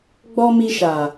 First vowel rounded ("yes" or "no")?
yes